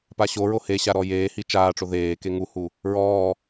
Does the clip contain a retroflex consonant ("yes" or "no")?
yes